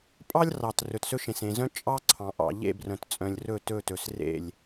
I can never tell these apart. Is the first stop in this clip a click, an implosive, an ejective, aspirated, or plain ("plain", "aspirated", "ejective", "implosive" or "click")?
ejective